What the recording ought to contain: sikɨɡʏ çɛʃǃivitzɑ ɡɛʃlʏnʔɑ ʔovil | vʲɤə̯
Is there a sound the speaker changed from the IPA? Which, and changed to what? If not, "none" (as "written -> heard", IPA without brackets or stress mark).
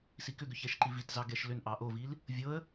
ɨ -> ʏ